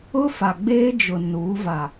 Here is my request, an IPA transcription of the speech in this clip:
ʊ˦ f a˨ ɡ͡b eː˦ d͡ʒ ʊ˨ n uː˨˦ v a˨

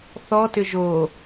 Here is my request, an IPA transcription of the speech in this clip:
θ ɔ t ʏ ʒ o

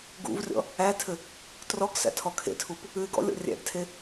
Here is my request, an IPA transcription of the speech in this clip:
ɡ ṵ v rʲ ɔ̰ | æ tʰ ɘ | t r ɔ ɡ s æ̰ tʰ ɔ kʰ ḛ tʰ u p | ʉ ɪ̯ ɡ ɔ̰ lʲ ɔ̰ rʲ æ̰ ɡ tʰ e

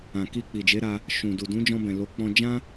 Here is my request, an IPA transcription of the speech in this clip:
ã˨ k i˧ k͡p i˨ d͡ʒ e˨˦ ɾ a˧ | ʃ ũ˨ d u˨ d ũ˨˦ d͡ʒ ɔ̃˧ b ɛ̃˨ l o˨˦ k͡p ɔ̃˧ d͡ʒ ã˦

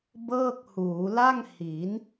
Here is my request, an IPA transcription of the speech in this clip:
b ɤː˥˩ k̚ h uː˩˦ l a˥˩ ŋ h i˩˦ n

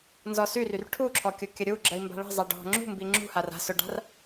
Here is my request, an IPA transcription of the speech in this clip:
n z ɔ s y r y r ʈʰ u ǁʰ ɔ kʲ ʊ kʲ ə ɾʲ u ɡ͡ǁ ə i̯ m b a̤ ɭ ə̤ zˤ a ɖ ɔ̤ ŋ͡ǁ ṳ m b i ŋ͡ǁ ṳ h a r a̤ s ʊ ɖ a̤ r

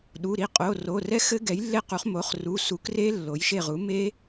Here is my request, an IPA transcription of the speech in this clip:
ɗ u˩˧˩ ɾ i˦˨ qʼ o˩˧˩ r o˩˧˩ r ɛ˦˥ x ɘ˦˥ ɡ ɛ˩˥ j lː e˦˥ q u˩˥ χ m o˩˥ χ r u˩˧˩ s u˩˥ k r e˦˥ lː o˩˥ j ʃ e˦˨ ʁ u˩˥ m e˦˥

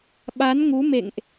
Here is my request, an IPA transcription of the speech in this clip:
ɓ a˨˦ n ŋ u˨˦ m ḛ˧˨ ŋ ʔ

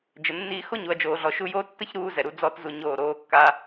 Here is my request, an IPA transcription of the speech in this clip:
d͡ʒ ə˨ nː iː˧ x o˦ ɲ u˨ ɐ̯ d͡ʒ oː˨ ɮ ɔ˨ ʃ u˧ j oː˦ tː ə˦ ç ɾ uː˧ z ɛ˨ ɾ u˦ d͡z ɔ˦ t z u˧ ɲ oː˦˨ ɾ oː˦ kː a˦

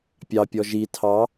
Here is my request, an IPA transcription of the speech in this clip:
pʲ ɑ pʲ ɔ ʒ i tʰ ɑ

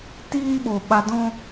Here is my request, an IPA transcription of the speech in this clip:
t iː˦ ɓ o˨ ɓ a˧ d ɔ̃˦

